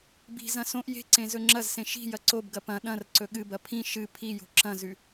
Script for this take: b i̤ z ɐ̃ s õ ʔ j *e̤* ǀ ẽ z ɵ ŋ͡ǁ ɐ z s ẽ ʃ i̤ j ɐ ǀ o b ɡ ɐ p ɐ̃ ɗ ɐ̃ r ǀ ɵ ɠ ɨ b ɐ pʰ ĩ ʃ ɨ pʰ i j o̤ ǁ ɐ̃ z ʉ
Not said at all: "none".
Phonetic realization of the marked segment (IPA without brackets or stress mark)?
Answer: e̤